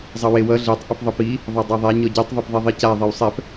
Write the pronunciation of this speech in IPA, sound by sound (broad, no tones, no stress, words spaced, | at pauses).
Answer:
zˤʌwewʌ ɮetˤ ʔʌpðˤʌpi | ðˤadˤæðˤæ ɲɔɟitˤ ðˤepðˤeðˤica ðˤewsˤɛp